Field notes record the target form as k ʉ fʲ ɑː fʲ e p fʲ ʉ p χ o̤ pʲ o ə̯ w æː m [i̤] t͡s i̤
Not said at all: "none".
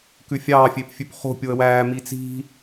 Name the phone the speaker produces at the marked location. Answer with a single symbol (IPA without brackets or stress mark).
i